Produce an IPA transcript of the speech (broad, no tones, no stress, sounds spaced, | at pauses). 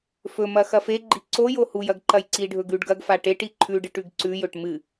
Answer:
f ɵ m ɐ x ɐ f e ɡ͡ǃ i ǀ o j o h u j ɐ ɡ ǃ ɐ j ǀ i ɖʱ ɵ ɡ ʉ ɖ ɡ ɐ ɡ f a ʈ e ʈ i ǃʰ ʉ ɖ ɨ ʈ ʉ ɡ ǀ ʉ j ɵ ʈ m ɨ